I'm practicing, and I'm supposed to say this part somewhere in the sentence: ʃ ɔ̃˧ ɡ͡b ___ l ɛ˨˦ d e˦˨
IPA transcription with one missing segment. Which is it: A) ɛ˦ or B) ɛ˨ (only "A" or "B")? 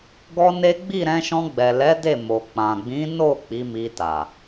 B